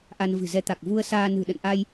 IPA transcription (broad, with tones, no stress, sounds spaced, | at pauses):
ʔ a˧ n v ɨ̤˨˩ z ɛ˧ t̪ a˨˩ k̚ v u˧ ə̯ s aː˧ n ɨ̤˨˩ ɗ ə̰˧˨ n ʔ a˧ j